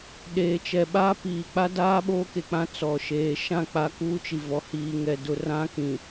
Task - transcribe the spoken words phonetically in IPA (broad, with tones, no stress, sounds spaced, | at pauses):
ɗ eː˨ t͡ʃ ɛ˨ ɓ aː˦ p iː˨ k͡p a˦ d aː˦ ɓ oː˦ k e˨ k͡p ã˦ t͡s ɔ˨ ʃ eː˨ ʃ ã˦˨ k͡p a˦ k uː˦ t͡ʃ i˨ v ɔ˨ h iː˨ ŋ ɛ˨ d ʊ˨ r ã˦ k ĩ˨